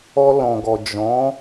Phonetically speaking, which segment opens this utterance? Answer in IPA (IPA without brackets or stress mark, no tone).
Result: ɔ